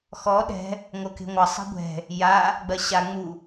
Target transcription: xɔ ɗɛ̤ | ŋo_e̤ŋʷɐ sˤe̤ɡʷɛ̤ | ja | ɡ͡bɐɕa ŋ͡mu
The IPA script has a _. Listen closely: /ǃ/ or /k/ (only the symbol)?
k